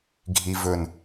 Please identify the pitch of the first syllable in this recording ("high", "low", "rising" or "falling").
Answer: low